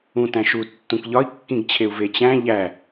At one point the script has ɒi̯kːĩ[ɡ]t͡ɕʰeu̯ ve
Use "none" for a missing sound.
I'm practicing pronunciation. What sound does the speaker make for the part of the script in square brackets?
ɡ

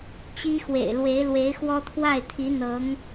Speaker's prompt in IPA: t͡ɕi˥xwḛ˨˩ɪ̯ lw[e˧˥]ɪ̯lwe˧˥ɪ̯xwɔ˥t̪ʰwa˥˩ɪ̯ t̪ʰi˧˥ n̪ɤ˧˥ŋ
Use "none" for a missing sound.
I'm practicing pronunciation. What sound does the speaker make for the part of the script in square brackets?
e˧˥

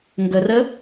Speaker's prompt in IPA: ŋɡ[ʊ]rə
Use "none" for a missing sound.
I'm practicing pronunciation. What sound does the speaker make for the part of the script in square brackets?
ə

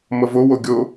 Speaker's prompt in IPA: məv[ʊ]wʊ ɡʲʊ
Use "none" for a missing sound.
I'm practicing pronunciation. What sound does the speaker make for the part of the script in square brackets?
ʊ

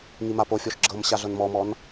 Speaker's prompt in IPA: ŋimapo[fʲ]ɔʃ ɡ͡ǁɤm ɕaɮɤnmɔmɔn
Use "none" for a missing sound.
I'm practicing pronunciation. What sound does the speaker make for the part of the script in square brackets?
fʲ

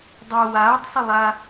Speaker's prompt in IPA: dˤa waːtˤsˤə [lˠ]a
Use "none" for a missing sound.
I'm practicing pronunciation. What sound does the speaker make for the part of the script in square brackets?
lˠ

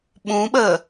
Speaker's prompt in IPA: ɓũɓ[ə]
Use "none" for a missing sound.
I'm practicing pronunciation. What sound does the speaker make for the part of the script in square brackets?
ə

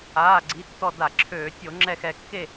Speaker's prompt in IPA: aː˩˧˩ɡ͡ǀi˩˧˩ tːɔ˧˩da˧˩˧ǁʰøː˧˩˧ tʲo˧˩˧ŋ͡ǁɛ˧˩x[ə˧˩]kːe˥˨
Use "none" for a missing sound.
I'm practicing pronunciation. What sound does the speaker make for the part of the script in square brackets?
ɛ˧˩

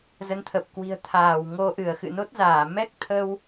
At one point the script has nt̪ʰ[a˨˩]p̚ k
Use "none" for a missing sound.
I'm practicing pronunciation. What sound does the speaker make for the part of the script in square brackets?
ə˨˩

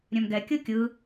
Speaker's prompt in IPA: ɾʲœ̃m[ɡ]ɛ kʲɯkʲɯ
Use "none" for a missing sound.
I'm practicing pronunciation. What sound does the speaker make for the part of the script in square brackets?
ɡ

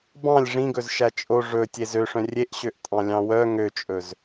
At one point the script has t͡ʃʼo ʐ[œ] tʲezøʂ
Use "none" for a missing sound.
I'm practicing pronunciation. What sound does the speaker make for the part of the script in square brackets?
ɵ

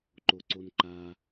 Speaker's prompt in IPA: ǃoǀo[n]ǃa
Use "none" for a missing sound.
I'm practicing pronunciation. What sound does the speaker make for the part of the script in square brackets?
n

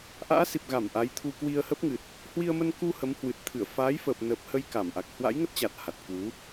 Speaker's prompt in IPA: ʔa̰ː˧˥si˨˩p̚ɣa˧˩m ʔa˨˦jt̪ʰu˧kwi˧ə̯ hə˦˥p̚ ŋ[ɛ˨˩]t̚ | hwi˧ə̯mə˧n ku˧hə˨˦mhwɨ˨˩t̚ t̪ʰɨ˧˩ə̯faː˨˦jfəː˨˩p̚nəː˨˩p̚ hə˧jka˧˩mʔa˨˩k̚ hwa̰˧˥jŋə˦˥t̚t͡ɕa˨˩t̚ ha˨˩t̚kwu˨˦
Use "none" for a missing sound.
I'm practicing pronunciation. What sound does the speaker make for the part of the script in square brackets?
ɨ˨˩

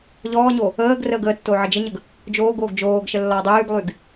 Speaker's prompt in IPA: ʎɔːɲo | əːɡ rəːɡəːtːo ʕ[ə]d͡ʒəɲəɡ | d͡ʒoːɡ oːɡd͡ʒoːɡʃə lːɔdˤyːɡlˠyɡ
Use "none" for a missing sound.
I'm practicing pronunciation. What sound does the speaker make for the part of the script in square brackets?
ə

